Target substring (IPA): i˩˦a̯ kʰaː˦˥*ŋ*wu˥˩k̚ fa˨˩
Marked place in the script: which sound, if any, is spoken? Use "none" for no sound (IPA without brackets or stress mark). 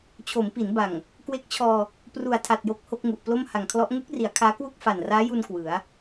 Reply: k